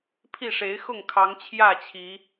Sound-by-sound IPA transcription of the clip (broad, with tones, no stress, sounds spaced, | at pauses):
pʰ i˥˨ ʂ e˨˦ ɪ̯ x ʊ˥˨ ŋ kʰ ɑ˨˦ ŋ t͡ɕʰ j ä˥˨ t͡ɕʰ i˨˦